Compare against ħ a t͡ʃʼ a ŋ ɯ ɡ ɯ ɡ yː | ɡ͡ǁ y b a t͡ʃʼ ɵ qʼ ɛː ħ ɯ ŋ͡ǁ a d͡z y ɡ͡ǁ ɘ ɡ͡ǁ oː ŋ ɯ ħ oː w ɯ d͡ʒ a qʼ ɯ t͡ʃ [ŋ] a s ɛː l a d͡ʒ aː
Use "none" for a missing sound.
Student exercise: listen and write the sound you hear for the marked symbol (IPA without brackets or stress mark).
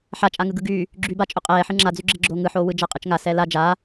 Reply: ŋ